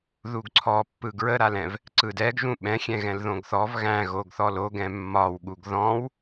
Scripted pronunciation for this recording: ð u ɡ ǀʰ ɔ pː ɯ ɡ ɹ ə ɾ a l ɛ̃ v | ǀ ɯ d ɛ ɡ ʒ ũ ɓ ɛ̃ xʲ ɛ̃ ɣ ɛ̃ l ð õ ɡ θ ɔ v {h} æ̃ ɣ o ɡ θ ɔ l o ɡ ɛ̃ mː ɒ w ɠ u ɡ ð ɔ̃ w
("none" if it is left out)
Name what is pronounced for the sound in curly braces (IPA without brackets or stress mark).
ɣ